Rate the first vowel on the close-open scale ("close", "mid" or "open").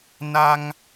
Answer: open